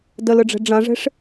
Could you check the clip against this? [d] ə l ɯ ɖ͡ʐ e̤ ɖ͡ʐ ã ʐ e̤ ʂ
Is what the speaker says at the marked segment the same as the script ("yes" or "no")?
yes